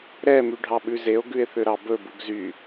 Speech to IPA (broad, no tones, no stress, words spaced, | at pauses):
ɾɛ myɖʱɑɓʉzeo̯ ɡʉe̯θøɾɑbɵ buɡzy